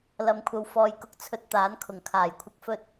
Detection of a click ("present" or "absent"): absent